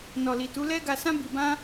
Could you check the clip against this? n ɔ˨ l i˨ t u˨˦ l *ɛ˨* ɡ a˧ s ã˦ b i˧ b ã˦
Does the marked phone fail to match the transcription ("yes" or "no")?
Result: yes